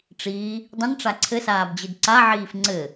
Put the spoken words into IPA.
ʈ͡ʂ iː | dˤ ĩ n ʈ͡ʂ a ǀʰ ɘ s aː b d͡ʑ ɨ d ǀ a ʕ iː f ŋ͡ǀ ɘ

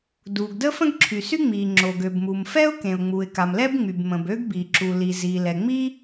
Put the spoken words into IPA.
d uː˩ ɡ d əː˥ f ə̃˥ ɡ ǁʰ y˩ s y˥ ŋ͡m iː˩ ŋ͡ǁ o˩ ɡ ø˩ b m u˩ m f ɛ˥ ʊ̯ k ẽ˩ ʊ̯ ŋ͡m u˩ ɪ̯ k a˩ m l ɛ˥ b ŋ͡m y˩ b m ə̃˩ b ø˥ ɡ b i˩ ǁ u˩ l i˩ z iː˩ l ɛ˩ ŋ͡m iː˥

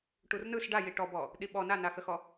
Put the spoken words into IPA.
ʈ u r n ɯ s ɖ a j i ʈ ɔ b ɔ | ɗ i ɓ ɔ n a n a x ə x ɔ

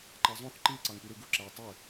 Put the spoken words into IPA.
ǃ ɑ zˤ õ θ ǃ i ǀ ɑ ŋ p y ɾ ɯ ɡ u ǁ æ ʊ̯ tˤ ø

